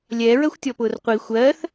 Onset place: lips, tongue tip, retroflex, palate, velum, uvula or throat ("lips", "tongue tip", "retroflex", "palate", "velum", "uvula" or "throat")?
tongue tip